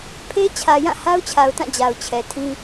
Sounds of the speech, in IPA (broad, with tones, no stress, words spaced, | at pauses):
pʰe˦ t͡ɕʰä˨jã˦˨ ha˦ʊ̯t͡ɕʰa˨ʊ̯tã˦˨ d͡ʑa˨ʊ̯t͡ɕʰɛ˨tʰĩ˦